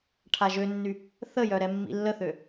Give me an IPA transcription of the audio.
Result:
ʈʰaʒønːy | θəjœ ɾɛmːḭlːəθø

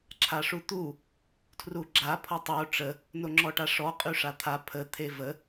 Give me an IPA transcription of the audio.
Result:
ǁʰaʂut̪u | tʰruɡ͡ǁa pʰɔtˤo ʈ͡ʂə | noŋ͡ǁɔʈaʂɔ qʼyʂat̪ʰa pʰə t̪ʰevə

